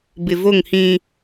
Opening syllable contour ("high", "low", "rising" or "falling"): low